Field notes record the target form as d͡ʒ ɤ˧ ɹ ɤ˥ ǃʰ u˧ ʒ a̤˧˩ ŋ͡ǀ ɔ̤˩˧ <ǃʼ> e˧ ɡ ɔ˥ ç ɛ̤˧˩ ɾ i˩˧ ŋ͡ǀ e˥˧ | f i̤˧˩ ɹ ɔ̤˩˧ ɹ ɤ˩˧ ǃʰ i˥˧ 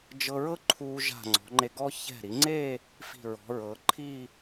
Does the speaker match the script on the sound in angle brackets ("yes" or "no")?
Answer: no